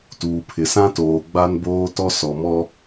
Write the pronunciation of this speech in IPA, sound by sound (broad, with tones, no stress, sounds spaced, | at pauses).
t uː˨ pʰ ɪ˨ s ã˦ t oː˨ ɡ͡b a˦ n b oː˦ t ɔ˦ s ɔ˨ m ɔ˦